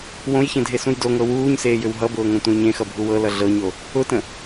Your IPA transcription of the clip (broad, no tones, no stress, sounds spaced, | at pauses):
w õ j ç ẽ dʱ e s ũ j d o ŋ ɤ w uː ɲ s eː j ʏ w ɦ ʌ b ʊː ŋ õ tʷ ẽ j ɲ ẽ x ʌ bʱ u w ɤ l ʌ ɮ ɤ ɲ o | ʊ t ə̃